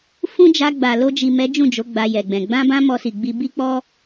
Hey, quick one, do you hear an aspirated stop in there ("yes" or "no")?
no